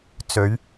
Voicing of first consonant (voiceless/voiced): voiceless